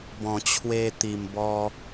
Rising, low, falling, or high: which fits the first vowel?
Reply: low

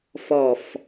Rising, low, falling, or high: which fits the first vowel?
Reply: low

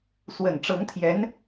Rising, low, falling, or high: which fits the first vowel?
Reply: low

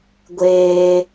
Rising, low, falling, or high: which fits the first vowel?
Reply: high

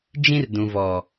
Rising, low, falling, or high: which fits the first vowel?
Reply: high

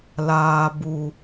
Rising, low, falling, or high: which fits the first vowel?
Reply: low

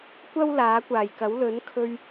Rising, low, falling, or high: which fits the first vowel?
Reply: high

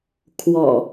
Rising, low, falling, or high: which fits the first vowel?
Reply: low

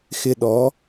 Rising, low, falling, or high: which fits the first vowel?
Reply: low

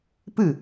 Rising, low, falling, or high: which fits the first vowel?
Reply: falling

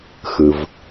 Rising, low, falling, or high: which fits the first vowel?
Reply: low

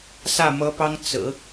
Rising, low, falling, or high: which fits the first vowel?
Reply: falling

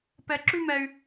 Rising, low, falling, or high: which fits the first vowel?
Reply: high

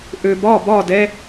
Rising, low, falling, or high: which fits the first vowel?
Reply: low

